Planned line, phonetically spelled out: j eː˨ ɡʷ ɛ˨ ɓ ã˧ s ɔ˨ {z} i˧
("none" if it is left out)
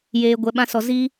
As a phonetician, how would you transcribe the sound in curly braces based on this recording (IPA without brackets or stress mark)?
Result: z